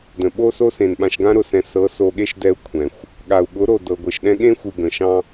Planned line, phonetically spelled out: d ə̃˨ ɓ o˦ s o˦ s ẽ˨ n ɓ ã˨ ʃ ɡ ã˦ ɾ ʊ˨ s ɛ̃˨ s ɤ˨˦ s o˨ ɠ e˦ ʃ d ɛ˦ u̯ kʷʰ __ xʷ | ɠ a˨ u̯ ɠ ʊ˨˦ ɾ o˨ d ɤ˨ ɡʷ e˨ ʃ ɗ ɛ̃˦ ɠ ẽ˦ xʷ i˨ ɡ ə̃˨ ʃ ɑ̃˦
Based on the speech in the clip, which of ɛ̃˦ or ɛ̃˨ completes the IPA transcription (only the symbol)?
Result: ɛ̃˨